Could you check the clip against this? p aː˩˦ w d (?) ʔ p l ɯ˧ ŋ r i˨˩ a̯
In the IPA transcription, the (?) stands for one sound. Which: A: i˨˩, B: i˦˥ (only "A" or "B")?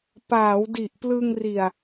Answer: A